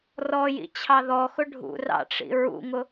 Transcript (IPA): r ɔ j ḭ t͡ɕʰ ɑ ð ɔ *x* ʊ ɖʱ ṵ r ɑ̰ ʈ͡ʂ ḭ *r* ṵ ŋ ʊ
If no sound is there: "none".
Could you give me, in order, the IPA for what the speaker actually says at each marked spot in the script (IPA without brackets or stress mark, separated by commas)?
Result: x, ɹ